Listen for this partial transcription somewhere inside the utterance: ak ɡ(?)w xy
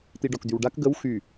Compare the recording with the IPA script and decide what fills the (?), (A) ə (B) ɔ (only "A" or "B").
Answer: A